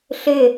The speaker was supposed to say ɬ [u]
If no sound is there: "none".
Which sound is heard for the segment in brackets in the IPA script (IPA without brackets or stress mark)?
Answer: ʏ